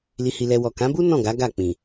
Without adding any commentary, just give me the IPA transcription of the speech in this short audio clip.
li˧hi˧lɛ˧ wɔ˨kã˨˦bu˦ nɔ̃˦˨ɡa˨˦ ɡa˦˨ k͡pĩ˨

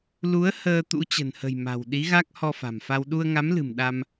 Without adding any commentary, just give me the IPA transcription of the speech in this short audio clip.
lu˨˦ə̯ həː˧t̪ṵ˧˥ t͡ɕə̤˨˩nhə̤˨˩jma̤˨˩w ɗi˨˦ɣa˦˥k̚ hɔ˧fa̤˨˩mfa˧w ɗu˧ə̯ŋa˨˦mlɨ̤˨˩m ɗa˧m

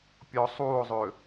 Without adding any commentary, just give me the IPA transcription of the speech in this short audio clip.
pʲɔ sˤuːo̯zˤø

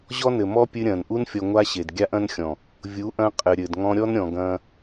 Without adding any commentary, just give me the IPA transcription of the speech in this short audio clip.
ʑɔ˦nɘ˨mɔ˦ pʲɨ˧ɾʲɐ̃ː˨nʔu˦n fʲɔ˧ŋʷa˦ɕe˨d ɡʲa˦ʔɐ̃˦nxʲɔ̃˨ | vʲu˨˦ʔɐ̃˧ qʼɘ˨ɾʲɘ˨d ŋɔ̃˧ɾʲɔ˦nɾʲɔ̃˨ɡɐ̃ː˧

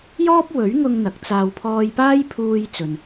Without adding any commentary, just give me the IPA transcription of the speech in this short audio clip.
jɔː˥p̚wɵ˨˥ɥŋʊ˧ŋ n̪ɐ˨˥k̚t͡saː˧w pʰɔː˧jpaː˥jpʰuː˧j t͡sɵ˨n

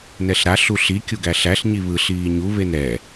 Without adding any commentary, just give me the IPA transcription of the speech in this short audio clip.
nɛɬɾa ɬuɬi kʲuɡæɬæɬ ɲiβɯ ɬiːɲu βenɾɛ

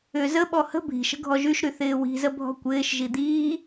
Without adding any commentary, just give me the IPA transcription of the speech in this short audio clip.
ʏ zəɓɔ hə̤ bʱi̤ʃə̤ ɡʱɔʒyʃɾy θɪːwi̤zə bʱɔ̤kʷɪːʃʒi d̪iː

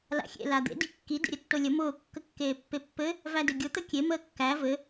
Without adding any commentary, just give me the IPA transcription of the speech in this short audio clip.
la̰xʲḛ lad̪ḛ dikːi dḛɾʲətːolʲə mʊː kːəkːeːpːepːɘ | vædɘɡʲʊ t̪əkʲe məːkːæ vɘ

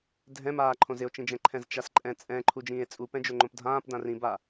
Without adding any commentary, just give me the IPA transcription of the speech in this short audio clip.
dʱɛ̃maː ǃʰõzɪo̯t͡ʃĩd͡ʒɛ̃ ǃʰɛ̃zt͡ʃasǃʼɛ̃ t͡sʼɛ̃ ǃʰud͡ʒĩːe̯t͡sʼu pɛ̃d͡ʒoŋ͡ǃõpdʱãːp dãrĩba

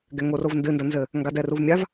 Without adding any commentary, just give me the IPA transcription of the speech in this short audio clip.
ɡɛŋorovndɨ ndɐnzɘ | ŋɡadɛruvmʲav

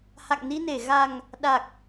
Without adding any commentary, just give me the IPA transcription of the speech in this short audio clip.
ha̰˧˨ŋni˧ne˧˩ ɣa˨˩ŋ | ɗa˨˩k̚

